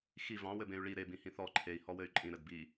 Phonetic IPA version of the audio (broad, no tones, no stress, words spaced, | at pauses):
xi vɑ̃ wɘbẽy̯ɭi ɾe bĩhĩθɔ ǃʰei̯ hɔwɘy̯ǃʼĩ ɾɘdbi